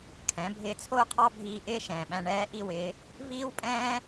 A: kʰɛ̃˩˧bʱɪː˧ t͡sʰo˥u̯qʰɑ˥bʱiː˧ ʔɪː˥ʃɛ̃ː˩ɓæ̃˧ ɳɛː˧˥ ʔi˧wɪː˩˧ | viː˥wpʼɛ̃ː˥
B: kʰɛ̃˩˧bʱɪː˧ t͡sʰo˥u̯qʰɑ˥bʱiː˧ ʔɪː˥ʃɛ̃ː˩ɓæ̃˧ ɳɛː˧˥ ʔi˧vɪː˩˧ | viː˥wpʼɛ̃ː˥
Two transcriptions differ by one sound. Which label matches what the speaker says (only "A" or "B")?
A